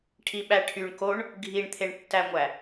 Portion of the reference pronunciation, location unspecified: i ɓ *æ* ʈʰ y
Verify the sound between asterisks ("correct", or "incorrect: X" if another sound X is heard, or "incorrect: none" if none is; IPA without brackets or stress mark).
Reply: correct